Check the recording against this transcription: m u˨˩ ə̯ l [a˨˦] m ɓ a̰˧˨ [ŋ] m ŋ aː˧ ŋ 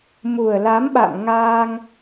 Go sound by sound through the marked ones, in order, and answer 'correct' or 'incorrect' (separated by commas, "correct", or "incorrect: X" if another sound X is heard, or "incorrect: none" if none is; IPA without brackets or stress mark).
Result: correct, incorrect: none